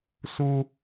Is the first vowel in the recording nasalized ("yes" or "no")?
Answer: no